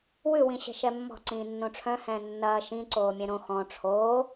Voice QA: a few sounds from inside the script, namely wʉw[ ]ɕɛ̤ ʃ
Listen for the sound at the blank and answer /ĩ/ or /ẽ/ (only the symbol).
ĩ